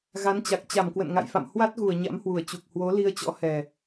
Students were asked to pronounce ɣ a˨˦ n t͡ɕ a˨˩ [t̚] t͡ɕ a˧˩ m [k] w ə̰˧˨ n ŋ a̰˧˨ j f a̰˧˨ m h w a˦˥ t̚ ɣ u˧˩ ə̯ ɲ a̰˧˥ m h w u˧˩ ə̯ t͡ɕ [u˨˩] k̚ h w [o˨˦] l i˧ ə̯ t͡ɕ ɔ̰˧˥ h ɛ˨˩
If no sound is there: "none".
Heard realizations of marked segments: k̚, k, u˨˩, o˨˦

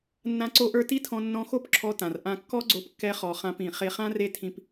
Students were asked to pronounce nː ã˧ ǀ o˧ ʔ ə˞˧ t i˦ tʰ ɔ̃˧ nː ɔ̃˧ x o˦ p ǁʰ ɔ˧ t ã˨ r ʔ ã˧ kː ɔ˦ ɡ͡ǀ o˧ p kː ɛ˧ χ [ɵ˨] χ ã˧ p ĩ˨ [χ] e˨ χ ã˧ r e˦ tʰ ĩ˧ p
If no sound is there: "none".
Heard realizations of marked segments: ɔ˨, χ

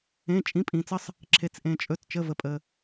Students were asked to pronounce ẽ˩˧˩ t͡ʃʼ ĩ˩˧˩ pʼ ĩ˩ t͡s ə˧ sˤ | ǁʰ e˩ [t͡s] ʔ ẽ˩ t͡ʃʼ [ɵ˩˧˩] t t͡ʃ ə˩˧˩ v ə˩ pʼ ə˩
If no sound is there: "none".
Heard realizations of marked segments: t͡s, ɵ˩˧˩

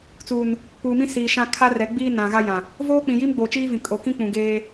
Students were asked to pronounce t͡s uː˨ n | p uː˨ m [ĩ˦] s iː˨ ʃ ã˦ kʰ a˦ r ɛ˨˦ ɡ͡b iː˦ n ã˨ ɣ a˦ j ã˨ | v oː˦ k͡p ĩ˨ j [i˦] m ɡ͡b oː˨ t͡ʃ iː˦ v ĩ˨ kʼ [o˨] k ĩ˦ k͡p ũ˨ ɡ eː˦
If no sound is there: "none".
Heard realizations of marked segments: ĩ˦, i˦, o˨

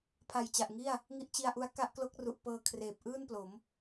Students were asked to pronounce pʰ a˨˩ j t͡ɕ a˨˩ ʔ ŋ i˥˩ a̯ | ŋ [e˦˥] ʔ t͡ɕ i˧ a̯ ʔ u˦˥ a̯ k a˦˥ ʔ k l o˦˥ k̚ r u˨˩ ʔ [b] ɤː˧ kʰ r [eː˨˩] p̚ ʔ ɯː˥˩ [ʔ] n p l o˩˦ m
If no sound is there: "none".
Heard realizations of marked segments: i˦˥, p, eː˨˩, none

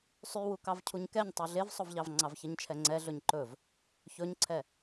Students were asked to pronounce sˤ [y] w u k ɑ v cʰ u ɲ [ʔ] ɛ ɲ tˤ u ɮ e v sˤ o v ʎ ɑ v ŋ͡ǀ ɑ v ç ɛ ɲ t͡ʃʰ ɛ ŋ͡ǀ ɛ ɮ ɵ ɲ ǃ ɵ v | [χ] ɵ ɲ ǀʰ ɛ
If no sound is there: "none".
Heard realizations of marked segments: y, k, ç

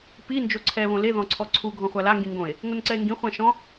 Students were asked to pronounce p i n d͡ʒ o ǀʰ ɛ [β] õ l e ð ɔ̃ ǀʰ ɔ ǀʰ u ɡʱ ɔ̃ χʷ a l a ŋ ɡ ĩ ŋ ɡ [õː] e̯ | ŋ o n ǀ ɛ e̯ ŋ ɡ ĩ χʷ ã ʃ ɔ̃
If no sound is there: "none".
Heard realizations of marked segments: β, õ

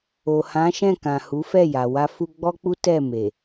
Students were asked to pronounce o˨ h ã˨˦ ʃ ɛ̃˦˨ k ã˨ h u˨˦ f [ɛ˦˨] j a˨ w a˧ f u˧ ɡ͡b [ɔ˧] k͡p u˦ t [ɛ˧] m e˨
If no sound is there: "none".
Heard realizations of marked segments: ɛ˦˨, ɔ˦, ɛ˦˨

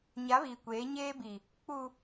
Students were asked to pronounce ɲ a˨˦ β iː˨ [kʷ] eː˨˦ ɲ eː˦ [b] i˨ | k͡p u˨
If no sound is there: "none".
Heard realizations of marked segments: kʷ, b

